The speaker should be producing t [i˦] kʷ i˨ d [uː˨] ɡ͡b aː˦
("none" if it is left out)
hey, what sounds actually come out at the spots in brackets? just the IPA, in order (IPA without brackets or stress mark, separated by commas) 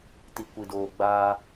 i˨, oː˨